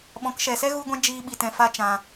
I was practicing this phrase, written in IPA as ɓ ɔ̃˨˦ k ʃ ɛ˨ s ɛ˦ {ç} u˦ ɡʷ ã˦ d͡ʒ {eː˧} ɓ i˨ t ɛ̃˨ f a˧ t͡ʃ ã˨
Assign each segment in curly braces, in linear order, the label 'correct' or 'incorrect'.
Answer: incorrect, incorrect

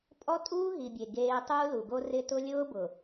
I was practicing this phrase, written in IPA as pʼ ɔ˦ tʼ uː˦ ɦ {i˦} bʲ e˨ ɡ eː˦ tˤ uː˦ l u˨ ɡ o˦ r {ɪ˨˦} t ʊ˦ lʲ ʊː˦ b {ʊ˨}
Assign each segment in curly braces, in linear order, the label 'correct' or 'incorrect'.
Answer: incorrect, incorrect, correct

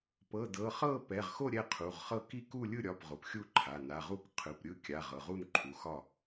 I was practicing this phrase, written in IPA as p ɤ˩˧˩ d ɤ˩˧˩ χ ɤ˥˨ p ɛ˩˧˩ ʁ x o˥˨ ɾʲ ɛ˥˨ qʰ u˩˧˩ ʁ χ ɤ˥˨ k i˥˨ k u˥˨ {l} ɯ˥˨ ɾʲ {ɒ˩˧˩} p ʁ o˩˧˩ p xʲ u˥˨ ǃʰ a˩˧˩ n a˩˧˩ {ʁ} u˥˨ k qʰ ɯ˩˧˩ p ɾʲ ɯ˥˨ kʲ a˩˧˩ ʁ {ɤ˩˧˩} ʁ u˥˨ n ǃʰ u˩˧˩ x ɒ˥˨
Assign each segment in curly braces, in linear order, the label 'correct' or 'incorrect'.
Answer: incorrect, correct, correct, correct

